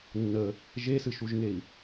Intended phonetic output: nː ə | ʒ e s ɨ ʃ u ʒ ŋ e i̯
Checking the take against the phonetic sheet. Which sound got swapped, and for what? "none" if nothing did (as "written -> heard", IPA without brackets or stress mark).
none